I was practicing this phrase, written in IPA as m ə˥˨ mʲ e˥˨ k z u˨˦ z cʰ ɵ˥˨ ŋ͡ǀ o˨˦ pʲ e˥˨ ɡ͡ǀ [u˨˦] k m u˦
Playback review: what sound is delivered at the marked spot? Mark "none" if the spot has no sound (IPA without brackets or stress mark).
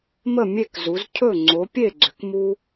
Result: ʏ˨˦